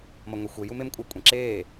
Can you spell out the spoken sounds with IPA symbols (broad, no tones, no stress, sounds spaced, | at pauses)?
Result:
m ʌ ŋʷ e xʷ e j u m e m kʷʼ ʌ kʷʼ ẽ ǁ eː